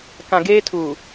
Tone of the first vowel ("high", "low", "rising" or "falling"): low